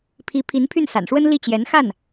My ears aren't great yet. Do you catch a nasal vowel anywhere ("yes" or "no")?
no